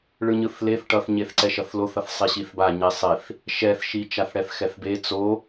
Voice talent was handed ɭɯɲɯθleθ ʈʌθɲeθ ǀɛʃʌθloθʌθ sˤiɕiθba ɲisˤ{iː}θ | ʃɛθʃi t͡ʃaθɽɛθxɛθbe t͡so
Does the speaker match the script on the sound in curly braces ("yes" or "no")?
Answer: no